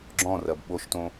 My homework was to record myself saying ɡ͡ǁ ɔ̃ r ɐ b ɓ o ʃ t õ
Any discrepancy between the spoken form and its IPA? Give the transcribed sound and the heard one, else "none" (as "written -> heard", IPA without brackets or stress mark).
none